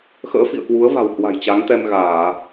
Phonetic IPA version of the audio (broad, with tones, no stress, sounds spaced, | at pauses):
x ə̰ː˧˥ f ḭ˧˨ ə̯ k w u˨˦ ə̯ v a̤˨˩ w h w a̤˨˩ j t͡ɕ a˨˦ ŋ t̪ ɛ˧ m ɣ aː˧˩˨